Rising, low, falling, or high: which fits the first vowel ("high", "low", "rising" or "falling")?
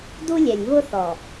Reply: high